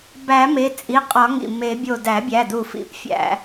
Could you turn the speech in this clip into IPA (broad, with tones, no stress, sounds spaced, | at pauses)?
b æ˨˩˦ m e˩˧˩ t͡sʼ i˩˧˩ qʼ ɒ˨˩˦ ŋ ḭ˩ m e˨˩˦ bʲ o˧˩ d æ˨˩˦ bʲ æ˩˧˩ d u˧˩ f ḭ˨˩˦ p fʲ æ̰˨˩˦